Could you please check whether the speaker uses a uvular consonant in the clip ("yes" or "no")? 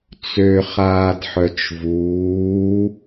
yes